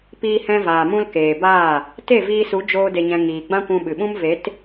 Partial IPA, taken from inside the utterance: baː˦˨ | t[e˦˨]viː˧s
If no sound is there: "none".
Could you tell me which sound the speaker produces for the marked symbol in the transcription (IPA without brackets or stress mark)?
e˦˨